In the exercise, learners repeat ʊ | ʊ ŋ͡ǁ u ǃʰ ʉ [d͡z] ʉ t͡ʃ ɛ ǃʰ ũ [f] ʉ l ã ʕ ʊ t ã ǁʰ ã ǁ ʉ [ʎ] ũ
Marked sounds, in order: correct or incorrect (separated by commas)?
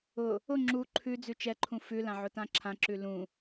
correct, correct, incorrect